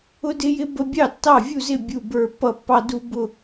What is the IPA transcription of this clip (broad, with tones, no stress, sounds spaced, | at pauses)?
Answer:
ʊ˥ d ɪ˥ j ɪ˥ b ə˥ bʲ ɑ˥˨ tː ɑ˥˨ vʲ u˥˨ z ɪ˥˨ bʲ u˥˨ b ə˞˥˨ pː ʌ˥˨ pː ɑ˥ d u˥ b ʊ˥˨